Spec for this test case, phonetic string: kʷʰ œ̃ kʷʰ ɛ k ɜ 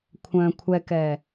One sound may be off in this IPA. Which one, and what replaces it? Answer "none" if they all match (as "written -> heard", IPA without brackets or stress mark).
ɜ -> ɛ